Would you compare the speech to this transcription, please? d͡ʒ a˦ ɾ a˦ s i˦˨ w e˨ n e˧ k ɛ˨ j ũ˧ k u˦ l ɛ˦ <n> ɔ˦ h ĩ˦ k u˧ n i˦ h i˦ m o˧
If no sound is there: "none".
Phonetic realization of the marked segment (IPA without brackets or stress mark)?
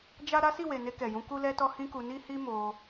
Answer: t